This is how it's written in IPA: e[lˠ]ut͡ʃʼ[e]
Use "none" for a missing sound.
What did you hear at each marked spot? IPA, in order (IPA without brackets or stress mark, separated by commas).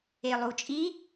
lˠ, i